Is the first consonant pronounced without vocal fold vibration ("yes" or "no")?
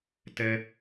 yes